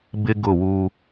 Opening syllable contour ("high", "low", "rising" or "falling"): high